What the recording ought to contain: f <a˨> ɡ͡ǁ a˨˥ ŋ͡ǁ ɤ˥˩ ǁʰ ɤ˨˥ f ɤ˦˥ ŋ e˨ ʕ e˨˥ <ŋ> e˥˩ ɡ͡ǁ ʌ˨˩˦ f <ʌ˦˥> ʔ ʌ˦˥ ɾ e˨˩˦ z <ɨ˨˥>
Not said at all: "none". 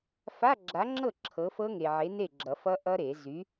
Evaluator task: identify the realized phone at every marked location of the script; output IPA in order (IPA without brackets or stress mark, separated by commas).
a˧˥˧, n, ʌ˦˥, y˨˥